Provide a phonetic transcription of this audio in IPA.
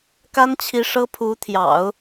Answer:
k a˥ n t͡ɕʰ i˧˥ ʂ ɤ˥ pʰ u˧˥ t̪ʰ j ɑ̰˨˩˦ ʊ̯

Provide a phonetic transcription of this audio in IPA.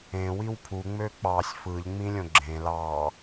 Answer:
ẽ w i w pʰ u ŋ͡m ø k͡p ɑ sʲ f ɯ ʎ ŋ͡m ĩ lʲ õ ɡ͡ǁ ẽ l ɑ

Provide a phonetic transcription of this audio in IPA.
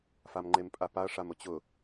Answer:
f a m ŋ͡ǃ e m pʼ a p a ɐ̯ ʂ a m ʊ t͡ɕ ʊ

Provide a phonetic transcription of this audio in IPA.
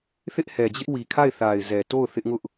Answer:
θ ɪ˦ ʔ h ɛ˨ d͡ʑ ɪ˦ ʔ w i˨ kʰ a˦˨ ɪ̯ θ a˨ ɪ̯ z ɛ˨ t o˦˨ ʊ̯ θ ɪ˦ ʔ ŋ ʊ˦ ʔ

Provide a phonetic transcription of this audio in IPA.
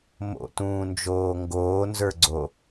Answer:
m o̰ t ũː n d͡ʒ oː ŋ ɡ oː n z ə˞ ɡ͡ǀ o

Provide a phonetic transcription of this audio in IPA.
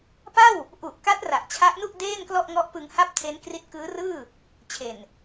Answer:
p a˥˩ w | ʔ u˨˩ ʔ k a˦˥ t̚ r a˨˩ ʔ t͡ɕʰ a˦˥ ʔ n u˥˩ ʔ d eː˥˩ n k l ɔ˥˩ ʔ ŋ ɔ˦˥ ʔ p ɯ˧ ŋ h a˥˩ p̚ tʰ e˦˥ n k r i˦˥ t̚ k ɯː˦˥ r ɯː˥˩ | t͡ɕʰ e˨˩ n

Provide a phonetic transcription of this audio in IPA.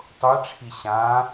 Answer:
tˤ ʊ e̯ ʈ͡ʂʰ i ɕ ã

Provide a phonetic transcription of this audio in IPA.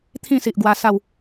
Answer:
t̪ʰ ĩ˥˧ s i˨ ʔ ɡ w a˧ s a˥˧ w

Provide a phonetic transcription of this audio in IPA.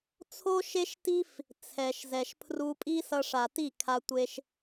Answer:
t͡sʰ o˦ ʃ e˦ ʃ t i˦ f | t͡sʰ ɛ˨ ʃ z ɛ˨ ʃ pʰ r u˧ pʼ i˦ s ʌ˧ ʂ a˨ t i˦˨ kʰ a˧ tʷ e˧ ʃ

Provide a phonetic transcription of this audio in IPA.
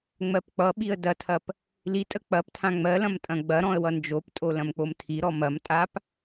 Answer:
ŋ͡m ɜ p k͡p ʌ ɓ i ə̯ d ɐ tʰ ɐ p | l i tʼ ə k͡p ɐ p tʰ ã ŋ͡m ɜ l ɐ̃ m tʼ ɐ̃ ɡ͡b ɐ ɾ ɔ̃ ə̯ w ʌ n d͡ʒ o p tʼ o l ɐ̃ m k͡p o m tʰ i ɾ ɔ m ɐ m tʼ a p

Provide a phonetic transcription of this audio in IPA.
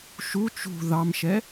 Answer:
ʃ u t͡ʃ ṳ ð ɑ m ʃ ɛ

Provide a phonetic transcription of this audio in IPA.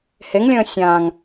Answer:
h e ŋ lʲ ə̃ː sʲ ãː ŋ

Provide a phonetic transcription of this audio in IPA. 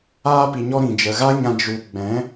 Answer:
aː˧ p i˨ ɲ ɔ˧ ɾ ĩ˨ d͡ʒ ə˨ ɣ a˦ ɲ ã˧ d͡ʒ u˧ ɡ͡b ɛ̃˨˦

